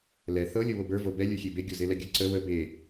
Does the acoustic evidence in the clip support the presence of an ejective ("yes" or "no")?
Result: no